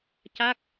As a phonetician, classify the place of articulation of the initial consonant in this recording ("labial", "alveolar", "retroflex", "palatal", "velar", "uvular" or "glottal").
palatal